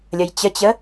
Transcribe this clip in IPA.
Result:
lʲ ə j t͡ɕ ə t͡ɕ ə

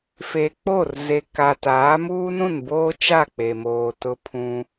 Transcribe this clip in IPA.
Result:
f e˨ k͡p o˦˨ r z e˨ k a˨ t aː˨˦ m uː˦ n ũ˦˨ n b oː˦ t͡ʃ a˦˨ k͡p e˨ m oː˨ t ʊ˦ pʰ ũ˦

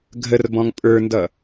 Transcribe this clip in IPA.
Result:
ɡʱ ə r b ɔ̃ ŋ pʼ ə˞ n d ʌ

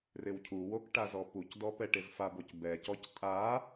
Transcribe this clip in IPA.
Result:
r ɪ w cʰ u w o k ʈ a z ɔ p u c d ɔ p ɛ ʈ ɪ z f a b o c b ɛ c ɔ c tʼ a

